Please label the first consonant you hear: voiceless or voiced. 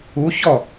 voiceless